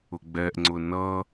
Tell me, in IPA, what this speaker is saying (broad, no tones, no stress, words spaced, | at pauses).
ʊɡ͡bɛʔŋ͡ǀʊ nʌ